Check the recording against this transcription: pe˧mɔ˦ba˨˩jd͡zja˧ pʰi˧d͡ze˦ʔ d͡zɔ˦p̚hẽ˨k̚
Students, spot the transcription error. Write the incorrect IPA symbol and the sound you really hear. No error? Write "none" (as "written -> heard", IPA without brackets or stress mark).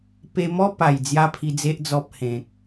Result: b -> p